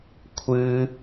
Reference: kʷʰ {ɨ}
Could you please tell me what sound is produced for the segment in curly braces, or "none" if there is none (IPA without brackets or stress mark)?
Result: ɨ